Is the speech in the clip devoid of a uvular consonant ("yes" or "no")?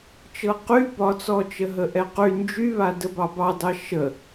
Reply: no